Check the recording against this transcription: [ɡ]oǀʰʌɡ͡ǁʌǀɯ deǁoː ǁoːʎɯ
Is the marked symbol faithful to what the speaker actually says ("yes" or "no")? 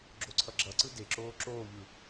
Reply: no